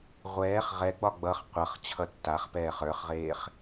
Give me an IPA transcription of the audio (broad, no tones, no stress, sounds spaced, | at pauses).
ʁʷ ɛː χ ʁ ɛ ɡ͡b ɒ ɡ͡b ʌ χ qʷ ʌ χ t͡ɕʰ ʌ tː a χ p ɛː χ ə˞ χ ʁ eː χ